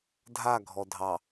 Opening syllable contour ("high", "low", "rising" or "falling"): falling